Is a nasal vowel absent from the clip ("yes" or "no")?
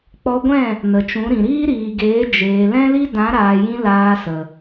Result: no